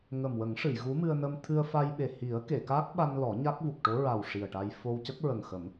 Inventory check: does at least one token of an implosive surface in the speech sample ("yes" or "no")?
yes